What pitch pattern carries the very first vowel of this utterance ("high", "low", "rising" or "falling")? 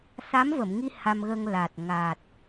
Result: rising